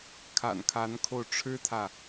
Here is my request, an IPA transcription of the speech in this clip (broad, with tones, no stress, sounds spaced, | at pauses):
kʰ a̰˨˩ n kʰ a˧˥ n kʰ o˧ ʊ̯ ʈ͡ʂʰ ɻ̩˥ t̪ʰ ä˨